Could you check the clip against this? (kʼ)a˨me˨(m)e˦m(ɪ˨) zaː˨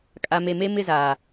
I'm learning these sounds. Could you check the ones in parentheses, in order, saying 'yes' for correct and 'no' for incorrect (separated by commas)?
yes, yes, no